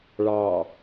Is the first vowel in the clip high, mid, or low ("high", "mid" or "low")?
low